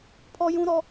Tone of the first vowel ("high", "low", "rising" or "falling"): high